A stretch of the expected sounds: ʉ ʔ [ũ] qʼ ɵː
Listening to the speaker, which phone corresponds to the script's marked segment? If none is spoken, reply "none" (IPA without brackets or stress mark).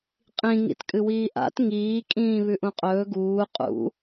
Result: ũ